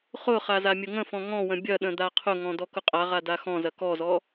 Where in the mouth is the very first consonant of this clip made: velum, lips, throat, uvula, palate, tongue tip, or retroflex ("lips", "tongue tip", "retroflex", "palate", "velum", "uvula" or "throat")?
uvula